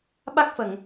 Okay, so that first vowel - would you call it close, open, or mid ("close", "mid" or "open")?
open